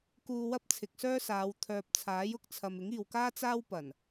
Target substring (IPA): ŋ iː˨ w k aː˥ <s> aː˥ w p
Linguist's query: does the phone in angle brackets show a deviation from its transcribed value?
yes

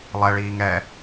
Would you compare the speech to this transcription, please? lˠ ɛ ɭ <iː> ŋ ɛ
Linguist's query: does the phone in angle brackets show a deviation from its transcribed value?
no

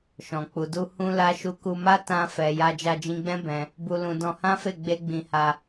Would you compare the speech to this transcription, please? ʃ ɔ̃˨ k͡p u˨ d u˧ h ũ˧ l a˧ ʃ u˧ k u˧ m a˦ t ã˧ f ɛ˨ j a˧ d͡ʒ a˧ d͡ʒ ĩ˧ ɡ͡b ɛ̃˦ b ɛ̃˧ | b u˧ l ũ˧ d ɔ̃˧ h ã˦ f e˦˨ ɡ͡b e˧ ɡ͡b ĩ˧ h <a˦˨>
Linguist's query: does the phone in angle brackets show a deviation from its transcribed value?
yes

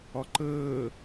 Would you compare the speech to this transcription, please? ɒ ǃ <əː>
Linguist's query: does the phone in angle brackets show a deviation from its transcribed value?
no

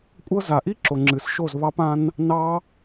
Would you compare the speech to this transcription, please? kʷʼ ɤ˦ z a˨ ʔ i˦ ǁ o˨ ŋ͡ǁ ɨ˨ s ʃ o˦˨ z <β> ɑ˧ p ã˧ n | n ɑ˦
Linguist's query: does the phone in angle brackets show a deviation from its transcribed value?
no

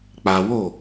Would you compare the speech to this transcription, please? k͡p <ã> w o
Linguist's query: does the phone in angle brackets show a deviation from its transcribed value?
yes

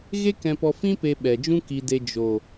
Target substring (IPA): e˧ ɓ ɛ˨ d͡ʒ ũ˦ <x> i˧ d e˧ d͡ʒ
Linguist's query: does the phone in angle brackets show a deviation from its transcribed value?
yes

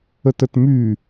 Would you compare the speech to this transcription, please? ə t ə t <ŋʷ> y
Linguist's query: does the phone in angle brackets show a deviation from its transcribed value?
yes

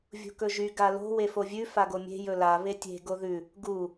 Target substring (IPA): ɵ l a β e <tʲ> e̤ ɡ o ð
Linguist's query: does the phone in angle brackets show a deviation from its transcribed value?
no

